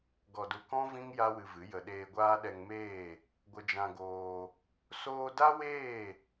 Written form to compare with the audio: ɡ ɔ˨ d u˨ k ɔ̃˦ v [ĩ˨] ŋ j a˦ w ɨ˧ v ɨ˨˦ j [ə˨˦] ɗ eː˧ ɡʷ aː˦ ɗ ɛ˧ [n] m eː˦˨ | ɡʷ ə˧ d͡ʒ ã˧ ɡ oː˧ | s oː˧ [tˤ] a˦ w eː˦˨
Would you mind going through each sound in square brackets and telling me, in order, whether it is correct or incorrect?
incorrect: ĩ˦, incorrect: ə˧, incorrect: ŋ, incorrect: d

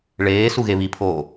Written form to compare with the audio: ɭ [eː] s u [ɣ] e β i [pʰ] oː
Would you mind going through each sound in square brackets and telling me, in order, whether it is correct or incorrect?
correct, correct, correct

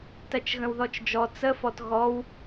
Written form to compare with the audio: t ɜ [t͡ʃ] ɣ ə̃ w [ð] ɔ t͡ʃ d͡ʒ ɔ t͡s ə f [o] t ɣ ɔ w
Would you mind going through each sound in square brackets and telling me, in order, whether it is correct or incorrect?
correct, correct, incorrect: ɔ

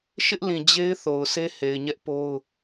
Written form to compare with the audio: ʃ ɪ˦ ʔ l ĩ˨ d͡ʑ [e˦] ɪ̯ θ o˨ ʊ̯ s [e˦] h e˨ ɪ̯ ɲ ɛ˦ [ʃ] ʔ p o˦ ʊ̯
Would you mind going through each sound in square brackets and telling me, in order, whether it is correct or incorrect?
correct, correct, incorrect: none

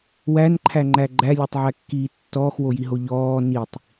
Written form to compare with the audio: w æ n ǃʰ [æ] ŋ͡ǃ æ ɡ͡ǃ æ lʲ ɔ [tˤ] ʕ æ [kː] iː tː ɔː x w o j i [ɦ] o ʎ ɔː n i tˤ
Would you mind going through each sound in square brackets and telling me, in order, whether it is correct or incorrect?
correct, correct, correct, correct

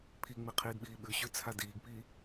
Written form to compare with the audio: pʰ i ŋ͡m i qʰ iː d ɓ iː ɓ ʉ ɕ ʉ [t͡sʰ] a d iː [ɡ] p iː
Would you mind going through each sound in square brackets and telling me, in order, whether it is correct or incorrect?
correct, correct

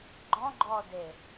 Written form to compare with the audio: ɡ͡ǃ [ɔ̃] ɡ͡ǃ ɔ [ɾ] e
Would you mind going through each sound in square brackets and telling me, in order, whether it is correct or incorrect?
correct, incorrect: d

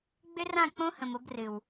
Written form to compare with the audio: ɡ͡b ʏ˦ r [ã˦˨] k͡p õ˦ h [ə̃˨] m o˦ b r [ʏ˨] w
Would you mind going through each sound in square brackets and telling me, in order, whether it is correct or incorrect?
correct, correct, incorrect: ɨ˨

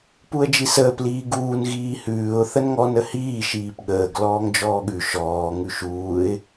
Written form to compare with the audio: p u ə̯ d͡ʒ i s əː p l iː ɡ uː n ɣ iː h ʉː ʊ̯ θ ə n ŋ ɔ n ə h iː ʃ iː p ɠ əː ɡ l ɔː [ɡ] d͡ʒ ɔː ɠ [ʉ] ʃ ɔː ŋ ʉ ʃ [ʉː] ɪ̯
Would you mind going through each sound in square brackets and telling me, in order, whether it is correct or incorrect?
incorrect: ŋ, correct, incorrect: uː

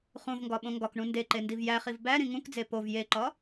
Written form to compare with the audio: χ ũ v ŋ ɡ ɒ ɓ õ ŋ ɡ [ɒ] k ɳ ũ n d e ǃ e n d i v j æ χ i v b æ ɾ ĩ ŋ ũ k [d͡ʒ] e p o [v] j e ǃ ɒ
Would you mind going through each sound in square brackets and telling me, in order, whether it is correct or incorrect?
correct, incorrect: d͡z, correct

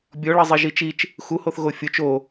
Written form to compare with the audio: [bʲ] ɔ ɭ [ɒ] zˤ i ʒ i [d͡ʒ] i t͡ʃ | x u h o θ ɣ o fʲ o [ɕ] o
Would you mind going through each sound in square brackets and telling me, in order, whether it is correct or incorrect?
correct, incorrect: ʌ, incorrect: t͡ʃ, incorrect: t͡ʃ

